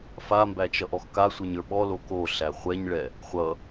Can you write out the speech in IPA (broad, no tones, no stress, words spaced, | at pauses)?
fambæt͡ʃʌʔɔx kasʷə˞ɲə˞ ɓɔlo koɬæ χʷɛɲɭɛ | χʷʌ